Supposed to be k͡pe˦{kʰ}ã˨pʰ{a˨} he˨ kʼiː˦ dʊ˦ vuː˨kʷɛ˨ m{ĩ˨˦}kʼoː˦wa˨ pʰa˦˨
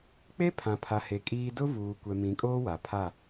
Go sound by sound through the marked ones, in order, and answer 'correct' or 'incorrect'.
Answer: incorrect: pʰ, correct, correct

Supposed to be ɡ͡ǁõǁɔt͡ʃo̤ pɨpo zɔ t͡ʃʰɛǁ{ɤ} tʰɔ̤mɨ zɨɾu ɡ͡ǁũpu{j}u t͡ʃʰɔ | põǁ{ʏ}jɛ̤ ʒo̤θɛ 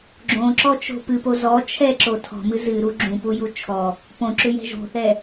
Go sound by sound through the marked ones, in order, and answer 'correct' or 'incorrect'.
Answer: incorrect: o, correct, correct

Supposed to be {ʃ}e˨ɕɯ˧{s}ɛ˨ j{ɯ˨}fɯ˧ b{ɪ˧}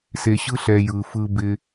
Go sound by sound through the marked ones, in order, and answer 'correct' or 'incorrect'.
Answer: incorrect: s, incorrect: ɬ, correct, correct

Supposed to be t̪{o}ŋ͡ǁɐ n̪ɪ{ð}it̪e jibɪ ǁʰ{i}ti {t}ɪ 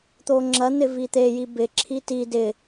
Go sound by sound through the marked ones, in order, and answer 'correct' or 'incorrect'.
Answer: correct, incorrect: v, correct, incorrect: d

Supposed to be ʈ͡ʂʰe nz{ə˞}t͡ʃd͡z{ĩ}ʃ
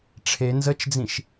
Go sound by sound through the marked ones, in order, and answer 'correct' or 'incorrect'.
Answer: incorrect: ə, correct

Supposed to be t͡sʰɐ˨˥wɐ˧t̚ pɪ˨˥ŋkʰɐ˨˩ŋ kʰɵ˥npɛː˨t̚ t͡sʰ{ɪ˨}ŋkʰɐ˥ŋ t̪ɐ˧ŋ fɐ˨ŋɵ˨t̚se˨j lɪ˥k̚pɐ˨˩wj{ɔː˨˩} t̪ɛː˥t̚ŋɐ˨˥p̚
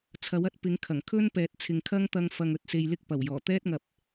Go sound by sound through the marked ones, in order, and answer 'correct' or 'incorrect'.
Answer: correct, correct

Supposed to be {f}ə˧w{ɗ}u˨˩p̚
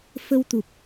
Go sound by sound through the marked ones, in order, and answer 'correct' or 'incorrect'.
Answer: correct, incorrect: t̪

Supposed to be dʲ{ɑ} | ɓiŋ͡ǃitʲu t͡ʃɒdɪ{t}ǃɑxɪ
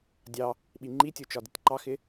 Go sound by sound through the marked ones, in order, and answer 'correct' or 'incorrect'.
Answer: correct, correct

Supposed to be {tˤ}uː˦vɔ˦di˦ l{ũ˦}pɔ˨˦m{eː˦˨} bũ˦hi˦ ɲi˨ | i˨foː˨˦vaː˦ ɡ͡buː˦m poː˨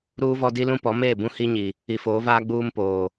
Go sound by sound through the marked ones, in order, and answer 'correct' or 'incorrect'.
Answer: incorrect: ɾ, correct, correct

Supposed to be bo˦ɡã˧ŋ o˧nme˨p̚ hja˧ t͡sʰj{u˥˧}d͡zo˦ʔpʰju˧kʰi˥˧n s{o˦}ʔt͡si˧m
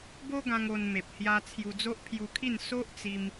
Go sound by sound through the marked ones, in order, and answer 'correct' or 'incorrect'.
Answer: incorrect: u˧, correct

